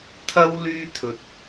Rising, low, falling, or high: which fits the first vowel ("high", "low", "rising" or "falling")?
high